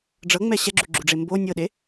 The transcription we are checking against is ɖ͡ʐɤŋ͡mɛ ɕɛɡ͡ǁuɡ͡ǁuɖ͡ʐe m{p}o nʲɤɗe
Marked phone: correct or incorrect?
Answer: incorrect